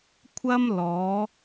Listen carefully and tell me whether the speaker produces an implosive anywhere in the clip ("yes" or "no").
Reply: no